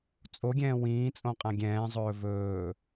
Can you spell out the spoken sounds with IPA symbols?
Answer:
t͡sʼ o ɡʲ ɛ̃ː w ĩː t͡sʼ õ qʼ æ̃ ɡʲ ɛ̃ː zˤ ɵː v ɵː

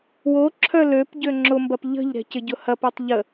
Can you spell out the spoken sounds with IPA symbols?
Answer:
w o ǁʰ œ l ø p ɟ ø ŋ͡ǁ ʊ m b ɐ p ʎ ə̤ ʎ ɾ ɛ̤ c ɪ ɟ ʊ h ɐ p ɛ tˤ ʎ ə

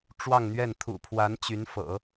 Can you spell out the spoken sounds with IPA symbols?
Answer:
ʈ͡ʂ w ɑ˥˧ ŋ n̪ ɥ ɛ˥˩ n t̪ʰ ṵ˨˩ pʰ w a˧˥ n t͡ɕ y˧˥ n f ɤ̰˨˩˦

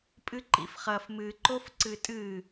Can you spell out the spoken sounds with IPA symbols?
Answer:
pʼ ɨ ǃ ḭ f χ ɐ f m ɨ ǃ o f ǀ ɨ tʼ ɨ

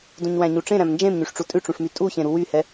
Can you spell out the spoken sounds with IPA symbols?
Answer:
d ũ ɲ w æ̃ ɲ u ʈ͡ʂ ẽ ɾ æ̃ m n d͡ʒ ẽ m ɲ y ʂ ʈ͡ʂ u tʼ ʉ ʈ͡ʂ ũ ʂ m y tʼ u ç ẽ ɾ u w y h ɛ

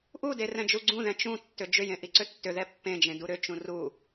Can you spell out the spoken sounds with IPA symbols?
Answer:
ʔ u d e r ɛ̃ d͡ʒ u ɡ͡ǀ ũ ð ɛ̃ t͡ʃ ũ tː ʏ d͡ʒ ʏ j ẽ ʔ i ǀ ʏ tː ʏ ð ɛ pː ẽ d͡ʒ ẽ d u ɾ ʏ t͡ʃ ũ r u

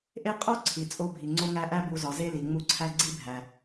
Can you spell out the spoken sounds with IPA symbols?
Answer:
ʔ e˥ qʼ o˦ ǀʰ i˩ t͡sʼ o˦ bʱ i˩ ŋ͡ǀ o˥ ŋ æ˦ ʔ æ˥ b u˨ z ɒ˩ z e˥ l i˩ ŋ͡m u˦ ǀʰ æ˥ ɡ͡ǀ i˥ bʱ æ˨

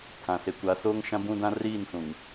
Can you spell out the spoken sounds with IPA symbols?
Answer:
tʰ ã˨ s e˨ kʷ a˨˦ s oː˦ ŋ ʃ ã˦ b ũ˦ d ã˦ r iː˦˨ n s ũ˨ ŋ

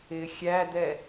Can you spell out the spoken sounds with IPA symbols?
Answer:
ɪ xʲ æ d̪ ɛ

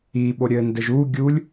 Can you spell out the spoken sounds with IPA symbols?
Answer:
i ɓ o ɾʲ ɘ n d ɘ ʒ u ɡʲ u lʲ

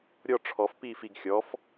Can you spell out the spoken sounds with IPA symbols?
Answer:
ɾʲ ɔ ʈ͡ʂʰ ɔ f p iː f i ɡ xʲ ɔ f

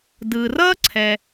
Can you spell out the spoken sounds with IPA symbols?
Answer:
d ɯ˩ r ʌ˥ ǀʰ ɛ˩

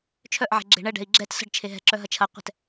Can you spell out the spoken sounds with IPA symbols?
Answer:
t͡ʃʰ œ ʔ ʕ e̤ ɡ͡ǁ e̤ ɳ ɛ ɖ ɛ̤ i̯ ɡ͡ǁ ɛ t s ə̤ ɖ t͡ʃʰ e ɦ ɛ̤ ǁ œ ɦ ɐ t͡ʃʰ ɐ qʷ ɛ̤ t

